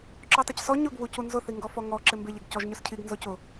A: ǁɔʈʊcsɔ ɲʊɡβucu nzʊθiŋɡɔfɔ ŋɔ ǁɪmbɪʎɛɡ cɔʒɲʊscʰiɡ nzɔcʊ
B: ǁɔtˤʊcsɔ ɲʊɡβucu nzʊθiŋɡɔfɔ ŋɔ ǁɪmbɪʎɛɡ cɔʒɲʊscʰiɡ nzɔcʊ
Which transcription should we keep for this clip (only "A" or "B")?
B